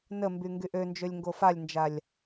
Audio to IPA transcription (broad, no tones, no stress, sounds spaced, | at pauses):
n ə m b y ŋ ɡ y ʔ ø n d͡ʒ ø lʲ ŋ ɡ o f a lʲ n d͡ʒ a lʲ